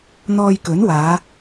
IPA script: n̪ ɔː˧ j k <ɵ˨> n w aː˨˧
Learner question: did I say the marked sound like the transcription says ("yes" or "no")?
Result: no